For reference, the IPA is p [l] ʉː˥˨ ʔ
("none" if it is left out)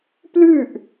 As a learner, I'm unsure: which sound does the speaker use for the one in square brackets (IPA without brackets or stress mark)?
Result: l